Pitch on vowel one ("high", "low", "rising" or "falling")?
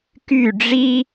falling